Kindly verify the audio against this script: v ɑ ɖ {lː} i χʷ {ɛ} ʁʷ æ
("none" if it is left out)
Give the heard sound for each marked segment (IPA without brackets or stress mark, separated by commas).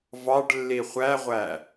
lː, æ